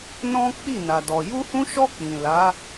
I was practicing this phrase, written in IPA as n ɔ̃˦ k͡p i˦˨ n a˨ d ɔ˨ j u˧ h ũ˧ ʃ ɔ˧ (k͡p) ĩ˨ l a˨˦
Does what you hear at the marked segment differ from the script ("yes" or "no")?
no